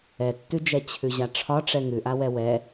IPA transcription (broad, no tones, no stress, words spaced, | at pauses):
ɛtːʉd͡ʒɛ t͡ɕʰʉʑaʈ͡ʂʰɒʈ͡ʂɛ ŋʉʔawɛ wɛ